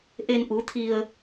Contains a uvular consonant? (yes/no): no